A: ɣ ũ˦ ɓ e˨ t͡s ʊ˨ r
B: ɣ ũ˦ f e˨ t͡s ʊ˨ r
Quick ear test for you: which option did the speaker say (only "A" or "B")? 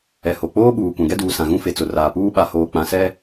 B